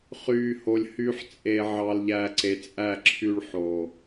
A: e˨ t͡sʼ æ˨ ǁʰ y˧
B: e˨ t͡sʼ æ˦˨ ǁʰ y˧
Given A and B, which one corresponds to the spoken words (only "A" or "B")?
B